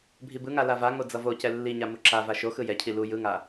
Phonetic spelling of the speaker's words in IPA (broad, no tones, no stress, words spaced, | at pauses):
bʱibɯŋa lavaŋo d͡zʌvocɛ lːiɲa muǁava ʃo xɯjɛcʰi lu jɯŋa